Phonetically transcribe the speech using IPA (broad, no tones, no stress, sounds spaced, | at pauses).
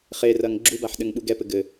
χ e r ɐ ŋ ɡ͡ǁ u b a ħ ɗ ɘ ŋ ɓ u ɡ ɛ p ɘ ɡ ɘ